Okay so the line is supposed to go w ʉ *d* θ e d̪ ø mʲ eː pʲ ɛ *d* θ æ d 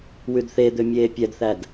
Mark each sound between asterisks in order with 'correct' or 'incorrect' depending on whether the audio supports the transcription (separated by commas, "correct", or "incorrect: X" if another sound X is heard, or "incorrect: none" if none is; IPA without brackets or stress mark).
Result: correct, correct